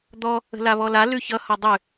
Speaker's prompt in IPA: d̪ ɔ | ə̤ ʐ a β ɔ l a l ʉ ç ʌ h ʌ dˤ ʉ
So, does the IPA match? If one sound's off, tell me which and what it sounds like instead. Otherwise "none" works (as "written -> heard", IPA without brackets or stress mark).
ʐ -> l